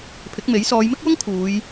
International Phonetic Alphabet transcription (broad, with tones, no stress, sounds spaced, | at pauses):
pʰ ɪ˨˥ k̚ m e˨˥ j s ɔː˨˧ j m ɪ˥ k̚ w ʊ˥ ŋ kʰ uː˨˧ j